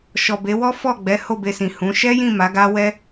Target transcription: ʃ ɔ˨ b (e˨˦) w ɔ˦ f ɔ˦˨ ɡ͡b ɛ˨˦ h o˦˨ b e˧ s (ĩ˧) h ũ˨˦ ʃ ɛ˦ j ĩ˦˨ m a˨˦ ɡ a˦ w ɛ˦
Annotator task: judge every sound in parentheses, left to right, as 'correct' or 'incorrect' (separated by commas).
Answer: correct, incorrect